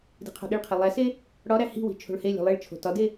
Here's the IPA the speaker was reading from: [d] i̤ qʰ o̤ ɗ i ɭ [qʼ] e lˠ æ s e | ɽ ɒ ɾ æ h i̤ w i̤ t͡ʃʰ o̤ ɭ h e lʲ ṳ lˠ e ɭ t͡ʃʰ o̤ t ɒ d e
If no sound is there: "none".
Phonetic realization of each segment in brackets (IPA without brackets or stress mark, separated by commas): d, qʰ